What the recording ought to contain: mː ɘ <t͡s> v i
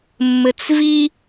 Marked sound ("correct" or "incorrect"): correct